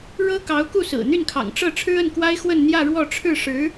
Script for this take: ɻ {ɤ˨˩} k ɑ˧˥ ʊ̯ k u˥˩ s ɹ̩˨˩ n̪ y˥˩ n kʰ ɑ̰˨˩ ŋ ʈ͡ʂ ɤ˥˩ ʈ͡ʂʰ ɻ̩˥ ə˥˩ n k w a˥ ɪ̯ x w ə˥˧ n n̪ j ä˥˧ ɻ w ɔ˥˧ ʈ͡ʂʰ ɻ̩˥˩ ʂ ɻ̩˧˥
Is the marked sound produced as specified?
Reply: no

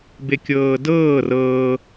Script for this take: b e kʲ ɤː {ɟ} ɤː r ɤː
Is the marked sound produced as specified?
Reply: no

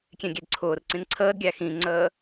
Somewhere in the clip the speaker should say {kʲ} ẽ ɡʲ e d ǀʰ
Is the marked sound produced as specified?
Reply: yes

